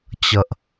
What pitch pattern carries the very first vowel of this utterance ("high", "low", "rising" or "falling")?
low